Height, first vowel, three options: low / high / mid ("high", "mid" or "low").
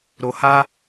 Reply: mid